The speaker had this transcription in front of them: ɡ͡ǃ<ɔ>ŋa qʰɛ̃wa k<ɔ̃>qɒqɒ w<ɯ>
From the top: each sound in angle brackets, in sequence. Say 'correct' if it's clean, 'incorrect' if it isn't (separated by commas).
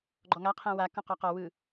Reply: correct, correct, correct